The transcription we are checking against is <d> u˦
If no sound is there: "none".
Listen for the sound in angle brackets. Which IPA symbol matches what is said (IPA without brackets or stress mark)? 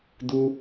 d